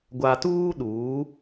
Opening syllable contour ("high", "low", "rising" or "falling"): low